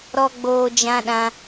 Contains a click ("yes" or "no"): no